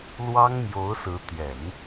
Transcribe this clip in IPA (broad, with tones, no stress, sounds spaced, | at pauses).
l w ɑ˥ ŋ m j o˧˥ ʊ̯ s ɹ̩˧˥ t̪ ɥ ɛ˨˩˦ n